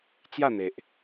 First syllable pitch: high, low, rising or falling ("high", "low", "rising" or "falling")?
falling